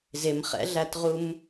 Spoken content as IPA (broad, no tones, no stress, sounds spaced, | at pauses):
z ɪ m χ ɛ̰ ɮ æ t ʁ u m